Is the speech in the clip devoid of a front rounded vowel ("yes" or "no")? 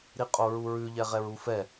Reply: yes